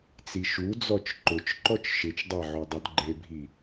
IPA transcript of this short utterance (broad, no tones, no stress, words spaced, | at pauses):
t͡siʃud͡zɔt͡ʃ ǃʊt͡ʃǃɔt͡ʃ ʃɪt͡ʃdˤa ʕodˤodɡ͡ǃebʱi